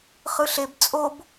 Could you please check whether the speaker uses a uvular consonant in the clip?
yes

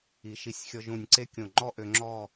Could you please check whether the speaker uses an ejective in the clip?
no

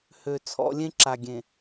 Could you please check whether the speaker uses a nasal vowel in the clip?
yes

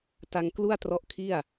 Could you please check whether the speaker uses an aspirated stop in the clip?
yes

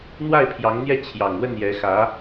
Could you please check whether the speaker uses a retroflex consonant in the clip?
no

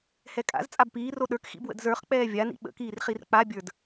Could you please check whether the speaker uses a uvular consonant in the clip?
yes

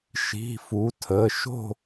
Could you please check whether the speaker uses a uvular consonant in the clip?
no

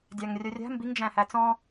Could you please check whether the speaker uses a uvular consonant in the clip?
no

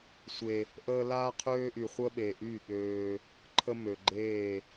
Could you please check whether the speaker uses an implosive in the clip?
yes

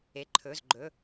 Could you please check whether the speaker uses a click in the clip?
yes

